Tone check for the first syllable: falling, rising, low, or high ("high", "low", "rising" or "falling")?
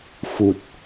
low